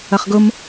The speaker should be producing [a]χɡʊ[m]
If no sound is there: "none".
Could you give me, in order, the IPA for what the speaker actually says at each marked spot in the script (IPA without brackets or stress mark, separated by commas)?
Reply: ɐ, m